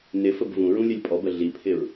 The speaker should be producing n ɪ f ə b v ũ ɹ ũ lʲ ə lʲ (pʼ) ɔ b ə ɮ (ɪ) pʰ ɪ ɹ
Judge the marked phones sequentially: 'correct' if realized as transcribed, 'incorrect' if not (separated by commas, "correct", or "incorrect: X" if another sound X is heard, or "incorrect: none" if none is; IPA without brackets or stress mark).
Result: correct, incorrect: i